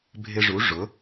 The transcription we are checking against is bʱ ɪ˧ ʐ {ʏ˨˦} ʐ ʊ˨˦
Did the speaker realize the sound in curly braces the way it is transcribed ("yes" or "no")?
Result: no